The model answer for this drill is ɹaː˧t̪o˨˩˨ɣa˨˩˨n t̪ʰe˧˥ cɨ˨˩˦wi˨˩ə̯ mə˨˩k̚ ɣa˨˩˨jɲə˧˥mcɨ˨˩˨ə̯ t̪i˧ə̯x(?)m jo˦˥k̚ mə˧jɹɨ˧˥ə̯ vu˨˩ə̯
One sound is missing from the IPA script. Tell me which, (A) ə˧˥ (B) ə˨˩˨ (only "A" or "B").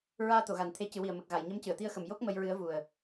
B